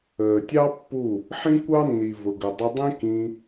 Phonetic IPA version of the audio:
əː˨ tʲ ɑ˦ pː u˦˨ | ħ ĩ˦ kʷ ɑ˦ nː i˨ v ʊ˨ ɡ ə˨ dˤ ɪ˧ dˤ ĩ˦ k ĩ˧

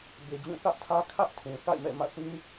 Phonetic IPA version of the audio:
b e˨ d͡ʑ ũ˦˨ θ ä˦ ʔ tʰ ä˦ kʰ ä˦ ʔ tʰ ũ˨ θ a̰˦˨ ɪ̯ m ɛ̰˦˨ m ä̰˦˨ θ ĩ˦

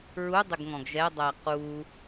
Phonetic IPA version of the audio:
ɹ u dˤ ɪ ɡ ŋ ɔ̃ ɡ ʒ ɛ dˤ æ q u

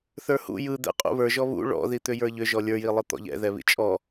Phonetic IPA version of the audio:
θ ə˞ h ṵ j ɯ d̪ ɛ̰ qʼ ṵ β ə˞ ʒ ɔ β ṵ ɭ ɔ̰ ð i t̪ ʏ j ə˞ ʎ ʏ ʒ ɔ lʲ ə˞ j i lˠ ɯ t̪ ɔ̰ ʎ ɛ̰ ð ɛ β ḭ t͡ʃʼ ɔ

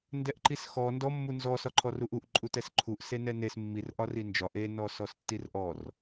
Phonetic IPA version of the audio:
n d ɛ ʔ ǃ i s x ɔ n d ɔ mː u n z ɔ s ɒ ǃʰ ɔ r u ʔ u ʔ ǃʼ u t ɛ s ǃʰ u ʔ s e n ɛ n e s mː i r ʔ ɒ r i n d͡ʒ ɒ ʔ e n ɔ s ɔ s tː i r ʔ ɔ r

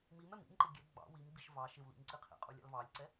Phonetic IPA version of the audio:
m i m ɛ m ḭ m ǃ ɪ ɡʲ ɛ ɡ͡b ɑ̰ w i m ɡ͡b i ʃ v ɑ ʃ ɪ w l ḭ m ǀ i qʰ ḭ qʼ u lʲ ɑ̰ l v ɑ lʲ ǀ ɛ

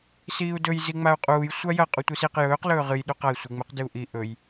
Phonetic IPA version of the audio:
s iː u̯ d ɵ j z i ŋ͡m a u̯ qʼ uː j sʷ a j ɐ qʼ u tʷ i s i q j ɵː q l ɵː ʁ ɨ j ɗ u q a i̯ sʷ i ŋ͡m ɨ q d ɨ u̯ ʔ i ʔ ɵ j

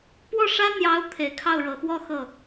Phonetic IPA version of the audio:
p w ɔ˥˩ ʂ ä˥ n̪ j ɑ˧˥ ʊ̯ t̪ʰ e˨˩ ɪ̯ kʰ ɑ˥˩ ʊ̯ ɻ ɤ˨˩ x w ɔ˥˧ x ɤ˥˩

